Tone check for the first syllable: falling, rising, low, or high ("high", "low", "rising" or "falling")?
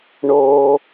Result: low